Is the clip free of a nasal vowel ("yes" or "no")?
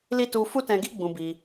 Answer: no